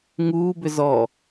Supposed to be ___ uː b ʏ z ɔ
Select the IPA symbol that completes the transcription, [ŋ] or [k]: ŋ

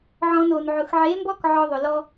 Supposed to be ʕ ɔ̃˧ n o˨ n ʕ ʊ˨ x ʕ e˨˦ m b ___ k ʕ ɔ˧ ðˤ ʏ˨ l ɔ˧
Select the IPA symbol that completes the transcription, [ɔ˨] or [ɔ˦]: ɔ˦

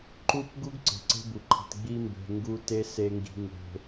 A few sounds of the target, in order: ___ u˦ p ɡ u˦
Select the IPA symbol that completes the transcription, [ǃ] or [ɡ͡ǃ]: ǃ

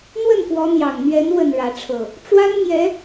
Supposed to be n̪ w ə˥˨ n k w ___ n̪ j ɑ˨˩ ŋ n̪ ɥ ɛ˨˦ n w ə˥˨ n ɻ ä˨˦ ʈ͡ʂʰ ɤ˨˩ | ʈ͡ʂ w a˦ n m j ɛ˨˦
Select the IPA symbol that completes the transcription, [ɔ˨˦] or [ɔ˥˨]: ɔ˨˦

